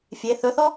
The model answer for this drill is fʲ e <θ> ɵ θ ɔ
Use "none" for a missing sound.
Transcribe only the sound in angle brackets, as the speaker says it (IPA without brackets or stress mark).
θ